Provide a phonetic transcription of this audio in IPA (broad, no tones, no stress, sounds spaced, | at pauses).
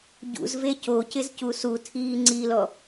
ɟ ṵ z v e c o c ɪ z c u s u tʰ iː ŋ͡ǀ i l ɔ